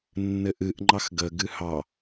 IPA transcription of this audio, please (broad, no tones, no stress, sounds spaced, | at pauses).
nː ɘ ʔ ɨ ʔ ŋ͡ǃ ɑ x ɡ ə ɡ ɨ h ɑ